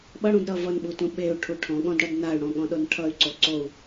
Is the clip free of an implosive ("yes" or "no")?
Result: no